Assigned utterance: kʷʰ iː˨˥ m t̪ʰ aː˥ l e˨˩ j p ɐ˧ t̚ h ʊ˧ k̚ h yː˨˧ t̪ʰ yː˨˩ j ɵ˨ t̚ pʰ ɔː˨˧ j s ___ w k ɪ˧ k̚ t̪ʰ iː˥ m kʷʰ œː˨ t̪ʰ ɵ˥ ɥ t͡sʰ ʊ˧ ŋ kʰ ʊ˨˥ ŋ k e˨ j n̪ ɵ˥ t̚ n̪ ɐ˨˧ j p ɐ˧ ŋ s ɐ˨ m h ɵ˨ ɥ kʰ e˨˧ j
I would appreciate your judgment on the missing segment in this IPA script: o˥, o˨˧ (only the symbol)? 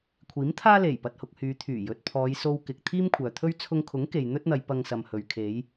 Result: o˥